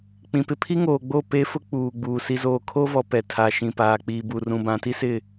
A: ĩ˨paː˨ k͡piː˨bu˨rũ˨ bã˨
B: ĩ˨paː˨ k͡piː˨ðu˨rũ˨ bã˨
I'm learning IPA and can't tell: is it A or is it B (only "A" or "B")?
A